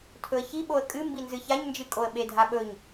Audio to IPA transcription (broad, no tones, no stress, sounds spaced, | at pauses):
tʰ ɵ ə̯ ç i ɓ o ə̯ kʼ ɨ m b i n z ɨ ç a ɲ n d͡ʒ ɨ kʼ o ə̯ ɓ e dʱ a ɓ ɵ ɲ